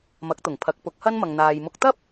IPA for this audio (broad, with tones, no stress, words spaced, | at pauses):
mɐ˨˥k̚t̪ʊ˨˩ŋ pʰɐ˨˥k̚pʊ˨˥k̚hɐ˥nmɐ˨ŋ n̪aː˨jmʊ˧k̚ t̪ɐ˥p̚